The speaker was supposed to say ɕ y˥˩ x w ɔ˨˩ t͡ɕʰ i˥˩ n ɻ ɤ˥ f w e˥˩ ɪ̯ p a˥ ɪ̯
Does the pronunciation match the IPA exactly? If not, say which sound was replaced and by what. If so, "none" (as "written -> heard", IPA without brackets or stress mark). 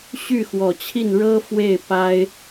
none